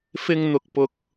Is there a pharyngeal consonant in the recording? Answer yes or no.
no